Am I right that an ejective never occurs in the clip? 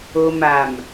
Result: yes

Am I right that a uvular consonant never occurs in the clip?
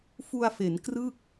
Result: yes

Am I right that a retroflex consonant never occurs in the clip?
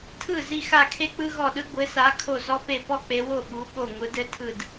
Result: yes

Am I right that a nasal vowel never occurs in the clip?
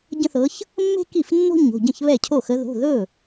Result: no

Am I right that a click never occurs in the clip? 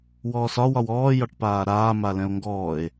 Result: yes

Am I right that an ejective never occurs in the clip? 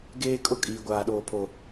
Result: no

